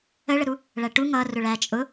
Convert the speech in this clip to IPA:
ə ɭ ə ɾ u | ɭ æ ʈ u ŋ ʌ r ʊ ɭ æ t͡ʃʼ ʊ

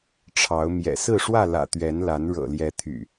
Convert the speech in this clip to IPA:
ʈ͡ʂʰ ɑ˨˦ ʊ̯ m j ɛ̰˨˩ s ɹ̩˥˨ ʂ w ä˥˨ l ä̰˨˩ t̪ ɥ ɛ˨˦ n l a˨˦ n ɻ ɤ̰˨˩ l j ɛ˨˦ t̪ʰ y̰˨˩

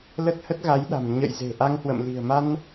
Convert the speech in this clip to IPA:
l ə˦˥ t̚ h ə˦˥ t̚ ɣ a˨˦ j ɗ a̤˨˩ m ɲ ə̰˧˨ j z e̤˨˩ ʔ a˧ ŋ h w ə̰˧˨ m l i̤˨˩ ə̯ m a˧ n

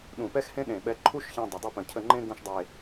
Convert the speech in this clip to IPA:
ɗ ũ˧˩ p ɛ˥ x h ẽ˥ ɗ ẽ˧˩ ɓ ɛ˧ ǃʰ u˥ ʃ ç ɛ̃˧ dˤ ʏ˩˧ dˤ ɨ˥˧ p ə̃˧˩ cʰ ə˥˧ ŋ͡ǃ ẽ˥ ɡ ũ˥ ʃ dˤ e˧˩

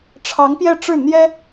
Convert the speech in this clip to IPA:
ʈ͡ʂʰ ɑ˧˥ ŋ p j ɛ˥˧ ʈ͡ʂ ɻ̩˥˩ n̪ j ɛ˥

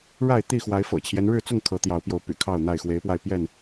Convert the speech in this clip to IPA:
ɻ a˥˨ ɪ̯ t̪ i˥˨ x w a˨˦ ɪ̯ f ɤ̰˨˩ t͡ɕʰ j ɛ˦ n ɻ ɻ̩˥˨ t͡s ʊ˥˨ ŋ kʰ ɤ˨˦ t̪ j ɑ˨˦ ʊ̯ p j o˨˦ ʊ̯ p y̰˨˩ kʰ ɑ˥˨ ʊ̯ n̪ a˥˨ ɪ̯ x w e˨˦ ɪ̯ p w a˧ ɪ̯ p j ɛ˥˨ n

